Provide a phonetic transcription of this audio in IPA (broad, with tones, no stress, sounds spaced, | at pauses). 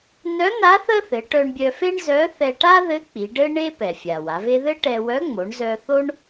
n œ˧˥ n̪ a˧˥ θ ə˥ θ ɘ˩˧ ʈ œ˧ ɳ bʲ œ˧ f e˥ ɳ z œ˧˥ θ ɛ˧ ʈ a˥ ð ɘ˧˥ k͡p i˩˧ ɖ ɘ˥ ɳ e˥ p ɛ˩ fʲ a˩ w a˩˧ v e˥ ð ɘ˥ ʈ ɛ˧ w œ˧˥ ŋ͡m o˩˧ ɳ z œ˧ θ o˥ ɳ